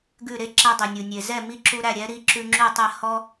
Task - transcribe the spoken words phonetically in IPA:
ɡ ʉ˥˩ ɾ e˥ ǁ æ˧ dˤ i˩ nʲ u˩ nʲ e˩ z ɛ˥˩ m i˥˩ ǁ u˧ ɾ æ˥˩ ɾʲ ɛ˩˥ ɾ i˩˥ ǁ ʉ˧ ŋ͡ǁ ʉ˥˩ tˤ ɛ˥˩ h ɔ˥

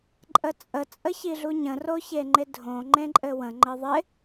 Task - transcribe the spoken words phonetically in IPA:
ǃʼ ə t͡sʼ ə t͡sʼ ə ç i ɮ u ɲ ə̃ r o ç e ŋ͡ǃ ɪ dʱ õ ŋ͡ǃ ẽ ǃʼ ɘ w ə̃ ŋ͡ǃ ɘ ðˤ ɪ

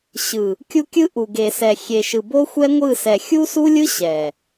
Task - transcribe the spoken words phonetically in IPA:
ɕ ɯ˨ | kʲ u˦ kʲ ɯ˦ ʔ u˨ ɡ e˨ s ɛ˨ xʲ e˨ ʃ ɯ˨ b o˦ xʷ ɛ˦ ŋʷ ɯ˦˨ s ɛ˨ xʲ u˦ s u˦ lʲ ɯ˦ ɕ ɛ˨

